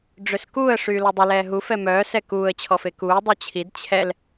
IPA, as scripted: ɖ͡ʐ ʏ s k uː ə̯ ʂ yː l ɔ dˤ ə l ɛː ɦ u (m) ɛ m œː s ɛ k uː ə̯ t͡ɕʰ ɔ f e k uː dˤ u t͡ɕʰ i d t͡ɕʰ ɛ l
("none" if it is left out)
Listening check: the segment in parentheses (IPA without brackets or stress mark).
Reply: f